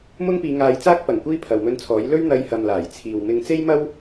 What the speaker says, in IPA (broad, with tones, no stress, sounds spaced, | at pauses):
m ʊ˥ ŋ p iː˧ ŋ aː˧ j t͡s aː˥ k̚ p ɐ˨˩ ŋ kʷ iː˧ pʰ ɐ˨ w m ɵ˧ n t͡sʰ ɔː˨˥ j l ɵ˥ ɥ n̪ ɐ˧ j h ɐ˨ m l aː˨˩ j t͡sʰ iː˨ w m ɪ˧ ŋ t͡s e˥ j m ɐ˥ w